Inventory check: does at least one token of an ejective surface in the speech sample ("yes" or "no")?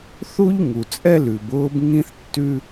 yes